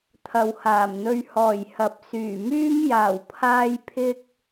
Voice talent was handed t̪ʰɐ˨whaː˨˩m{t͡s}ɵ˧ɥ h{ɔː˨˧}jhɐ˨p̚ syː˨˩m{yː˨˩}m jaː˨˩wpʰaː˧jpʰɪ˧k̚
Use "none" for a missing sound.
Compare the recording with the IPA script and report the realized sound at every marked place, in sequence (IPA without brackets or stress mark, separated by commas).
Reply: n̪, ɔː˨˩, yː˥